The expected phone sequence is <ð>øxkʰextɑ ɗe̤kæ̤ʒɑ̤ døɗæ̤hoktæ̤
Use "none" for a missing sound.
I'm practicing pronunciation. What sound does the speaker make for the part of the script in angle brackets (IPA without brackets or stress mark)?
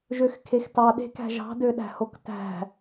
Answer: ʒ